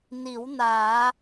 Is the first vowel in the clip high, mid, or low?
high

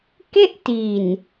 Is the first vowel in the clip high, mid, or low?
mid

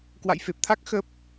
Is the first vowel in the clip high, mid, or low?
low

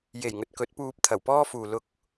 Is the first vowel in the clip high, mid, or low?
mid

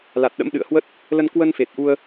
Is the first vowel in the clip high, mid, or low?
low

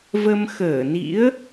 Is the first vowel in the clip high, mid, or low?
mid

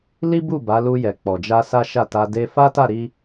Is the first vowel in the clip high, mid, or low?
high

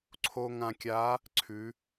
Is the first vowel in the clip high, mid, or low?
mid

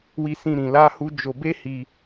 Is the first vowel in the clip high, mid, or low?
high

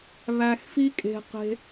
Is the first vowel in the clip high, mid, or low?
low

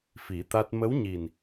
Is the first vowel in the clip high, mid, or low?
high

